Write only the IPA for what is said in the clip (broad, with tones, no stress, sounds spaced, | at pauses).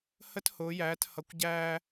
h ə˥ t h ʊː˩˧ j æː˩˧ t h ʌ˩˧ kʷ ɟ æː˧